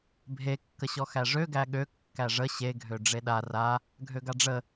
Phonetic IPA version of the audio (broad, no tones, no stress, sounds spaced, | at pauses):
bʱ e kː ə ɕ ɔ x æ ʐ ø ɡ æ ɠ ø kː æ ʐ ə ɕ e ɡʱ ø ɖ͡ʐ e ɗ a r a | ɡʱ ø ɡ a ɖ͡ʐ ə